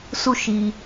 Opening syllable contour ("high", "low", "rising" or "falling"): falling